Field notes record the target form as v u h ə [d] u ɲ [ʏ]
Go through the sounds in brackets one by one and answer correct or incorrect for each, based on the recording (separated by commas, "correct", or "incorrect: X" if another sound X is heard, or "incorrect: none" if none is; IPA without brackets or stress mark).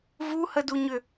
correct, correct